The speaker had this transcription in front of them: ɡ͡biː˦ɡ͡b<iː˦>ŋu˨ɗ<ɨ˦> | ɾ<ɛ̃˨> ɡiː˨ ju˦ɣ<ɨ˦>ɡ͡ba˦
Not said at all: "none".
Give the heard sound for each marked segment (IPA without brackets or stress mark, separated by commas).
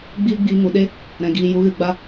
iː˧, e˦, ɛ̃˨, ɨ˧